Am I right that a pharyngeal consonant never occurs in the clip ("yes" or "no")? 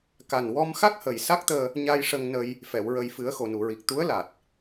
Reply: yes